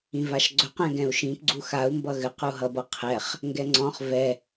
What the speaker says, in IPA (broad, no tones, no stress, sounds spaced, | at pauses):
ĩ v a ʃ ɡ͡ǀ ɵ q ɛ̃ ɡ ɛ̃ u̯ ʃ ĩ p ɡ͡ǀ u x a u̯ m b ʌ ɣ ɘ q u ɦ ʌ b ʌ qʰ ɛ χ | ŋ ɡ ɛ ŋ͡ǀ ɔ̃ χ v ɛ